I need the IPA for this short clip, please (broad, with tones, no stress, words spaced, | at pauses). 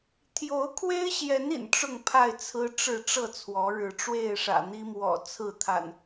t̪ʰjo˨˦ʊ̯kʰwe˦ɪ̯ɕjɛ˨˦n ḭ˨˩nʈ͡ʂʊ˥˨ŋpʰa˥˨ɪ̯ t͡sʰɹ̩˦ʈ͡ʂɻ̩˥˨ ʈ͡ʂɤ˥˨t͡sʰwɔ˨˦ɻɻ̩˨˦ ʈ͡ʂwe˥˨ɪ̯ʂä̰˨˩n̪i˦mwɔ̰˨˩ t͡sʰɹ̩˥˨t̪ʰa̰˨˩n